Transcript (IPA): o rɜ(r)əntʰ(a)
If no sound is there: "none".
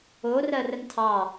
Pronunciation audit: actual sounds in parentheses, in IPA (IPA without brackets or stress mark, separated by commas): r, ɑ